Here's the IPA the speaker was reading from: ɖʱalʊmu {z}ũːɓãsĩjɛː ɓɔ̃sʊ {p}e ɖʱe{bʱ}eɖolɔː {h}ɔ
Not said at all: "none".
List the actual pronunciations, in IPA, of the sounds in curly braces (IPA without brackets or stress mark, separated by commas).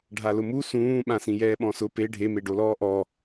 s, p, m, ʔ